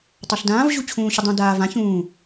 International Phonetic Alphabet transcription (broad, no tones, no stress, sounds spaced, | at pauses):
tˤ a ɬ d ãː v ʑ u t͡ɕʰ ũː ɕ ʊ dˤ ũ d aː v ã ç ũː